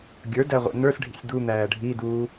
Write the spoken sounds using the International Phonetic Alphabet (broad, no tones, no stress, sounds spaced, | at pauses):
ɡʲ ə˞ d æ ʁʷ ɛ̰ n ə˞ s ɖʱ ḭ sʲ d̪ u n̪ æː ɖʱ i d uː